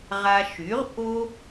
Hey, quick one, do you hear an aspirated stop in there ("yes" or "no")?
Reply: no